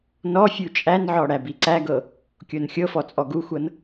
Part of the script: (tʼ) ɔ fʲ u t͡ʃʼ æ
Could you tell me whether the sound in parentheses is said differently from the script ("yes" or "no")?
yes